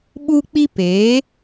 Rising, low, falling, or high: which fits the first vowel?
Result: high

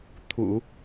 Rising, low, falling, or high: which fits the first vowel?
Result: low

